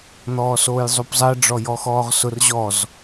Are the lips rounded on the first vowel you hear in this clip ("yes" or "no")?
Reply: yes